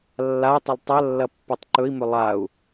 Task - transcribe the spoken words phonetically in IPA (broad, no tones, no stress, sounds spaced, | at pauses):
lː a u̯ tˤ ɪ lˠ tˤ ɐ lː ɐ pː o tˤ ǃ ɵ i̯ m ɵ lˠ a u̯